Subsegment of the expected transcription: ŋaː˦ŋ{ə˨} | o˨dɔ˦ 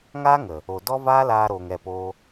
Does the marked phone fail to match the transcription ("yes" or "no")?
no